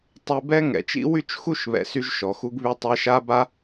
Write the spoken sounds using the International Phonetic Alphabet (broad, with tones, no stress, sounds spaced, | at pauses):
tˤ y˧ b ɛ˦ ŋ ɛ̰˨ t͡ʃ ḭ˦ w y˦ t͡ʃ x u˦˨ ʃ β ɛ̰˨ s y˦ ʒ ʃ ɔ˨ x u˦ ɡ β y˧ tˤ e˧ ʃ a˦ b a˦